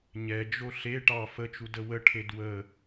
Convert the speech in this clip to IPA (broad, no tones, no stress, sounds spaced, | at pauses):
ɲ ɛ d͡ʒ o ɬ e ʈ ɑ f ə t͡ʃ u d ə w ə ʈʰ e d w ə